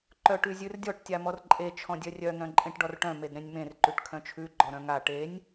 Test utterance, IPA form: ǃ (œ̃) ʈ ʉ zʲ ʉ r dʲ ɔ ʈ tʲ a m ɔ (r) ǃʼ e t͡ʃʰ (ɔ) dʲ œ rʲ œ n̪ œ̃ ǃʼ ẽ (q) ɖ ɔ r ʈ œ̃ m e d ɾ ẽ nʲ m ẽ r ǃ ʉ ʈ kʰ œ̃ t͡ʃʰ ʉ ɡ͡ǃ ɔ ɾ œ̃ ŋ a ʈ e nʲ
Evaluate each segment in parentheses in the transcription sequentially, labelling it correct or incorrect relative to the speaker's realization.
incorrect: œ, correct, incorrect: ɔ̃, incorrect: ʈ

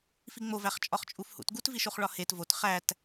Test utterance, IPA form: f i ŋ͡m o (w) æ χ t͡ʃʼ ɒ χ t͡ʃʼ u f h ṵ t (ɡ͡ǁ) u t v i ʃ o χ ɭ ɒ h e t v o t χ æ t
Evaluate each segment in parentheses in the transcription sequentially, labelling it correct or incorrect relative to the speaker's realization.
incorrect: v, incorrect: ɡ

